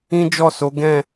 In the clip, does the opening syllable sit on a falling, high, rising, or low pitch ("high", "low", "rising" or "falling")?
high